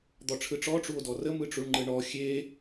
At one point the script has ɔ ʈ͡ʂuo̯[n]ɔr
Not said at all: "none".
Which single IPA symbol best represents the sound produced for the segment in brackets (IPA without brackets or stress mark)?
d